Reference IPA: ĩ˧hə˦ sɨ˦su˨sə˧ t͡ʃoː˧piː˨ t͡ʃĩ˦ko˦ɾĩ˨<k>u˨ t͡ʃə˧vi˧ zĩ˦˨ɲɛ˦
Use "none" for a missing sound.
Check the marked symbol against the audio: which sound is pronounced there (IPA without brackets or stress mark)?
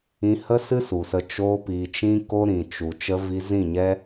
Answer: t͡ʃ